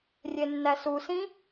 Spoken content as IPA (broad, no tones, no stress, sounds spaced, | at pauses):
rʲ e nː æ s u s ĩ